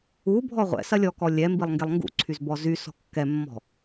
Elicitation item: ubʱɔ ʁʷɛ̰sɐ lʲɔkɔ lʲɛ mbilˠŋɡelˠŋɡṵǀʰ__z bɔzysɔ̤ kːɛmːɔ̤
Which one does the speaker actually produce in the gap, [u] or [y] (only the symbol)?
y